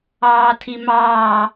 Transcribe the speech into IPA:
ɑː tʰ i m ɑː

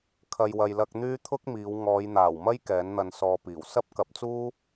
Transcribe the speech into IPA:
kʰ ɐ˨ j w ɐ˨ j l ɐ˧ k̚ n̪ yː˥ t̪ʰ ʊ˥ k̚ m iː˨˧ w ŋ ɔː˨˧ j n̪ aː˨˩ w m ɐ˥ j k ɛː˨˥ n n̪ ɐ˧ n s ɔː˧ p iː˨˩ w s ɐ˥ p̚ k ɐ˨˥ p̚ t͡s uː˥

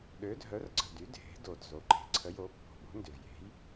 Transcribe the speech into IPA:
ɗ ø˨˥ dʱ œ˨˥ r ǀ ə̤˨˩ d y˨˥ dʱ e̤˨˥ d o˨˩ d z o˨˥ ǃ e̤˨˩ ǀʰ ə˨˥ j o˨˥ pː o̤˨˩ ɓ o̤˨˥ n d ʏ˨˩ v j e̤˨˥ j

